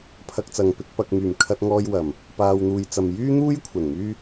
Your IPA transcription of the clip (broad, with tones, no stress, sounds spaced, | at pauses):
pʰ ɐ˧ k̚ t͡s ɐ˨ ŋ p ɪ˧ k̚ p ɐ˨ k̚ m yː˨˩ m kʰ ɐ˧ t̚ ŋ ɔː˧ j w ɐ˨˩ m | p aː˨ w n̪ uː˨ j t͡s ɐ˨ m j yː˥ n̪ uː˥ j kʷʰ ɐ˨˩ n m yː˥